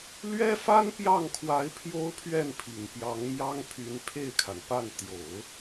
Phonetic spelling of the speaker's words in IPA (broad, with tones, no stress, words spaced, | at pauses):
lɥɛ˥fa˥npjɑ˥˩ŋkʰwa˧˥ɪ̯ pʰjo˥ʊ̯pʰɥɛ˥˩npʰi˨˩ŋ pjɑ˧˥ŋmjɑ˥ŋpʰy˧˥n pʰe˥˩ɪ̯kʰa˩npa˥˩n t̪jo˨˩˦ʊ̯